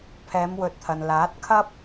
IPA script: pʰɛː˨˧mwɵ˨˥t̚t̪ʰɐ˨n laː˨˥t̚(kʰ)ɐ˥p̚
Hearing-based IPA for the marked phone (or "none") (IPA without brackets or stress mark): kʰ